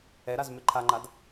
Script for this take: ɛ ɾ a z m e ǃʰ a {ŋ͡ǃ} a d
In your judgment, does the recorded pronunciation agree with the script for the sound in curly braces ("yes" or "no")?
yes